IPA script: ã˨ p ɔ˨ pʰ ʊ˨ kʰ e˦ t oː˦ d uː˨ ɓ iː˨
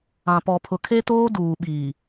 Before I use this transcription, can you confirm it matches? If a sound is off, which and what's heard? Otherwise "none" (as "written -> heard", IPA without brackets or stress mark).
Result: none